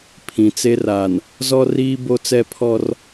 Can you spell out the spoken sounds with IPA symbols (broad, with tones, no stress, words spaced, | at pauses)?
pʰĩ˨t͡se˦ra˨n | zɔ˦riː˦ bo˦t͡sɛ˦pʰɔ˦r